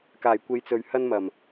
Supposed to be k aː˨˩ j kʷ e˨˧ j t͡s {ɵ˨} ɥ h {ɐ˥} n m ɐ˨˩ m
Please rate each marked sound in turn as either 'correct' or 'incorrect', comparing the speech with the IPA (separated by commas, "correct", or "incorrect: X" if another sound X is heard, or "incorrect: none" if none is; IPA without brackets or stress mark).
correct, correct